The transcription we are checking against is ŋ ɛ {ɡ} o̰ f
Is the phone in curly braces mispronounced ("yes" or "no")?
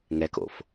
yes